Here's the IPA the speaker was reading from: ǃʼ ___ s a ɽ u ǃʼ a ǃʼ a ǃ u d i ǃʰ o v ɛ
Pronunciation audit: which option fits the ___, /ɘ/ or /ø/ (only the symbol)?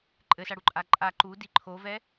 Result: ɘ